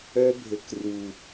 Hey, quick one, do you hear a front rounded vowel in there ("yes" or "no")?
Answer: yes